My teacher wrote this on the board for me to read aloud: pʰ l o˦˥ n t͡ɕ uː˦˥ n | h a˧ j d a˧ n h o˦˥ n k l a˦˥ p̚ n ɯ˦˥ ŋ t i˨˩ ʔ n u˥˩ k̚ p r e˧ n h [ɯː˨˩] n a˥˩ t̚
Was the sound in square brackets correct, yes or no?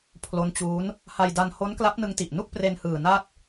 yes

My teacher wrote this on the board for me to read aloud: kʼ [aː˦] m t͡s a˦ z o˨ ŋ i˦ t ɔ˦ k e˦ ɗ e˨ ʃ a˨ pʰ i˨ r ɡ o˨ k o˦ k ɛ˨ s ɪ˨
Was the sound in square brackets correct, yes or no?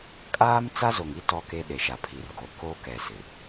yes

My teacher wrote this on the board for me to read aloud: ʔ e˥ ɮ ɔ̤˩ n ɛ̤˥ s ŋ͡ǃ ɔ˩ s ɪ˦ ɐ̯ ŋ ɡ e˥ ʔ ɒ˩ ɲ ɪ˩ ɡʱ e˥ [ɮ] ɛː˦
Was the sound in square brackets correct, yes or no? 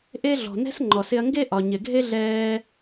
yes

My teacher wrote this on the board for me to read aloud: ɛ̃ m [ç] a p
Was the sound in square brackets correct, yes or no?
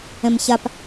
yes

